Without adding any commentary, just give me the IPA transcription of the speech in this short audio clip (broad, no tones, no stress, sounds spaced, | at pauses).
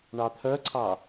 ɳ ɑ t̪ʰ œ ǀʰ ɑ